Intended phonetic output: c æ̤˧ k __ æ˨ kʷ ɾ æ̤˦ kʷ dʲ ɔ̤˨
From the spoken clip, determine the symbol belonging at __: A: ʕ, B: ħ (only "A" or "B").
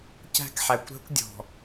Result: B